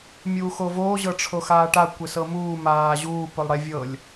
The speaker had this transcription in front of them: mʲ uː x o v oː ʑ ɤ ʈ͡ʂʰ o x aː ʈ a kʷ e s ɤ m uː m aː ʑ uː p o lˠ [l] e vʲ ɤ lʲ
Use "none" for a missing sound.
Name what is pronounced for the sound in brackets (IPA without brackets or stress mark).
ɽ